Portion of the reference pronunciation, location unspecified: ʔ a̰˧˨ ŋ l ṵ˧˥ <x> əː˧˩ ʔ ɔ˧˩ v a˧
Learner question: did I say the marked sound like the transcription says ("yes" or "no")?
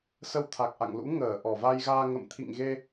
no